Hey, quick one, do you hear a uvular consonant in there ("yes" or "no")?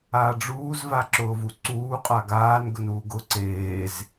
yes